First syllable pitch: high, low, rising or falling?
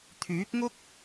rising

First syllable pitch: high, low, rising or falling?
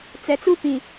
low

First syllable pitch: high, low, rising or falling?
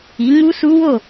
rising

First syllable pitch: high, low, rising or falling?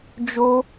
high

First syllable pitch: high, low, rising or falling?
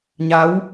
rising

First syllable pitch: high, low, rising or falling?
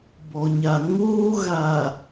low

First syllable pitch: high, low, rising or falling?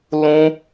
high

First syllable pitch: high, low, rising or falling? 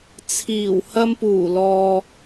low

